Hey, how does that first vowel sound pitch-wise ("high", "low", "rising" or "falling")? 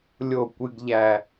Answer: falling